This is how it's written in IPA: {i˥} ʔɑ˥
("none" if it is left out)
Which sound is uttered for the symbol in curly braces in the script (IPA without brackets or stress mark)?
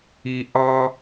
i˥